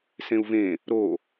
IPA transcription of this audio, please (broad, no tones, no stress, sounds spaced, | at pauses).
s ẽ u̯ v ẽ | ɾ o